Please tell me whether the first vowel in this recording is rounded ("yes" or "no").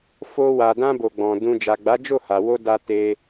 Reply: yes